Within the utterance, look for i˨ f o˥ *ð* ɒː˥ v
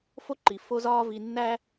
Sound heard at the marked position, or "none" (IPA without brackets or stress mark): z